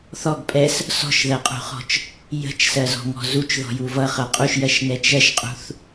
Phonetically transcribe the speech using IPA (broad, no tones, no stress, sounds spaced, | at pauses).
θ ɔ ɡ pʼ ɛ s | s ɔ̤ ʃ ð ɜ qʼ ṳ χ ɔ̤ t͡ʃ | j ə̤ t͡ʃ s ɜ z ɔ̤ ŋ ɔ̤ z u t͡ʃ ð ɔ̤ j u v ʌ χ ʌ qʼ u ʃ j ɜ ʃ n ɛ t͡ʃ ɜ ʃ qʼ ṳ θ